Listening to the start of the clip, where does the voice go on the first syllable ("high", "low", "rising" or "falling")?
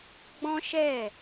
high